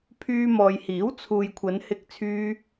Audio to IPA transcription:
pʰyː˧mɔː˨jhiː˨˥w t͡sʰuː˨jkʷʰɐ˨˧nhɪ˧k̚ t͡sʰyː˥

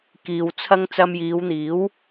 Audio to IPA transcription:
kiː˧wt͡sʰɐ˥ŋ t͡sɐ˧mjiː˨˧wn̪iː˨˥w

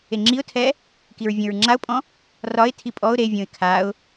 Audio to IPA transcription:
eŋ͡ǁiʊ̯tʰɛ | kiɹvʲõɹŋ͡ǁaʊ̯pʼɔ̃ | rɒɪ̯tʰi pʼɔʊ̯ ɾevʲõɪ̯ kʰaʊ̯

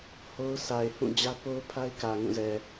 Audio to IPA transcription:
ho˦ʊ̯ sʰa˨ɪ̯ hũ˦˨d͡ʑä˦ po˦ʊ̯pʰa˦ɪ̯kä˨ ŋũ˦˨zɛ˨

